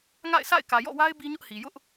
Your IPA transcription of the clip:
ŋ a̰˦˨ ɪ̯ s a̰˦˨ ɪ̯ k ä˨ j ɔ̰˦˨ w a˦ ɪ̯ b i˦ ɲ ʊ˦ ʔ h i˨ j ʊ˦ ʔ

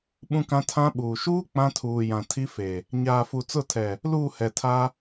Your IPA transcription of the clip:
ɓ ũ˦ k ã˦ tʰ ã˦ ɓ uː˨ ʃ uː˦ k͡p ã˦ tʰ uː˨ j ã˨ tʰ i˦ f e˨ | ɲ aː˨ f u˨ t͡s ʊ˦˨ tʰ ɛ˨ | l uː˦˨ h ɛ˨ tʰ a˦

